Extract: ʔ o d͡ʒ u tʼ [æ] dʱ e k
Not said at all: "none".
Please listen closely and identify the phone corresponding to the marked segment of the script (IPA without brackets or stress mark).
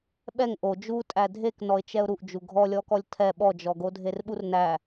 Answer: æ